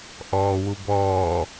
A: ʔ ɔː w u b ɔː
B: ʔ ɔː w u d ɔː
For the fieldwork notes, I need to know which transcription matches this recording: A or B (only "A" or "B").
A